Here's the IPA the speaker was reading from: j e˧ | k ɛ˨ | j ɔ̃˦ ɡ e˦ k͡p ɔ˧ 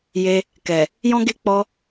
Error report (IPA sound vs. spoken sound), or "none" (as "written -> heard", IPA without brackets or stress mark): none